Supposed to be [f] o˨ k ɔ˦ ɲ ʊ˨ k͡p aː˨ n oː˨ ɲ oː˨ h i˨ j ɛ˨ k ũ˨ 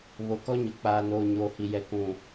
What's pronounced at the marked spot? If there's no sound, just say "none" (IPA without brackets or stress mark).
β